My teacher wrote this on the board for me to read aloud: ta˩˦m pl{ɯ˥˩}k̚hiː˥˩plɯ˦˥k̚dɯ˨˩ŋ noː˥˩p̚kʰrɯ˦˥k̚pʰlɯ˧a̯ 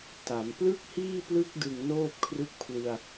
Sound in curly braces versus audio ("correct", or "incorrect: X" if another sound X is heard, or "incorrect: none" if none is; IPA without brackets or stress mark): correct